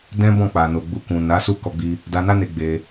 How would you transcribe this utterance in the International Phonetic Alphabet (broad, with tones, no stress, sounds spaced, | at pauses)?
d ɛ̃˦ b ɔ̃˦˨ k͡p a˨ n o˨ ɡ͡b u˧ k ũ˨ n a˨˦ s u˦˨ k ɔ˧ ɡ͡b i˧ | d a˧ n a˦ n e˧ ɡ͡b e˧